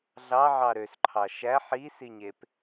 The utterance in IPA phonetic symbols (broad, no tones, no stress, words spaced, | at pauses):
ɮɑʕɑ ɾøsǃʰɑ ʃæ ħisiɲep